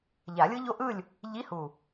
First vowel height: low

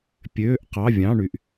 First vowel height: mid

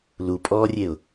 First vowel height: high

